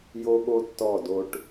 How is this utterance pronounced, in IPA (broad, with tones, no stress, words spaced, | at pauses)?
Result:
jo˦ɠo˦ tːɔ˦˨do˦ʈ